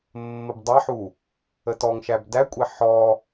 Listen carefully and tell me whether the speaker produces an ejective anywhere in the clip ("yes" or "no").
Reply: yes